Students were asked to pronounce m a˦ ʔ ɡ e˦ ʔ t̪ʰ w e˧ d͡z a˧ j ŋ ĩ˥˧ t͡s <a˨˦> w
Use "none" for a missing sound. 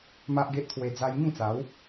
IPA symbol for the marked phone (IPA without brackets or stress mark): a˨˦